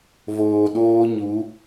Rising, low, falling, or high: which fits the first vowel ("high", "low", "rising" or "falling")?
low